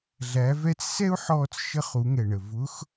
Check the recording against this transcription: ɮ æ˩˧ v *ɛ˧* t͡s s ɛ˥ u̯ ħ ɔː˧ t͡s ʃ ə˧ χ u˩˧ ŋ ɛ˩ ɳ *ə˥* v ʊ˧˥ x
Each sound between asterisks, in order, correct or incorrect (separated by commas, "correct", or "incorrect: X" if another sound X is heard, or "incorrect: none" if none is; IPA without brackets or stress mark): correct, incorrect: ə˩